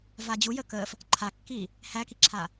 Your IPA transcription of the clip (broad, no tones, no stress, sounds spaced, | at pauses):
v a d͡ʑ u j ə k əː f | ǃʰ a kː iː | h æ k i ǁʰ aː